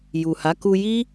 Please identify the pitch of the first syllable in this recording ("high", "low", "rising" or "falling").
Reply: low